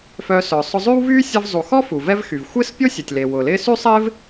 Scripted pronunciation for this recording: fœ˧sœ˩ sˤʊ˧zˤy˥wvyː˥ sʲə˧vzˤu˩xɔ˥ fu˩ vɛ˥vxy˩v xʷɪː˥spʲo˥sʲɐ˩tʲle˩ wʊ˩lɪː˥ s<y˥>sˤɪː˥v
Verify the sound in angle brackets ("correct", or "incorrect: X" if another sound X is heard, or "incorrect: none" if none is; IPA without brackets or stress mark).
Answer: correct